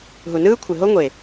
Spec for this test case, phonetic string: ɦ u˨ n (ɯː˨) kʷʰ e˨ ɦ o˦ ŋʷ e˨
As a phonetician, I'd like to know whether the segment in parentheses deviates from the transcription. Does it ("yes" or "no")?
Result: yes